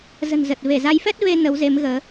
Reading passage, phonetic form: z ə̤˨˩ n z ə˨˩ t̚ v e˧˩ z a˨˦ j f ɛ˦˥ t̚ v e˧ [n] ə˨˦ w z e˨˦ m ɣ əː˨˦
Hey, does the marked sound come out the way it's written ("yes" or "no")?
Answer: yes